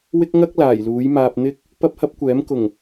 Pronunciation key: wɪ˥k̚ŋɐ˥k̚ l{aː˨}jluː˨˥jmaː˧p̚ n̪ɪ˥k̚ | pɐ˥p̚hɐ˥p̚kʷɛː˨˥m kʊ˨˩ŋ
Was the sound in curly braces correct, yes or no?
no